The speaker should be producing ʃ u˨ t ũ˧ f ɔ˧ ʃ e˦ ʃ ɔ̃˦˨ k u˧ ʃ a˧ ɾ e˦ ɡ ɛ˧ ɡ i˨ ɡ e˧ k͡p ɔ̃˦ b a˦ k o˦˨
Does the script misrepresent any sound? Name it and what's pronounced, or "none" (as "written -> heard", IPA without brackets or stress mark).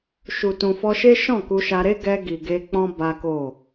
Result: ũ˧ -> ũ˨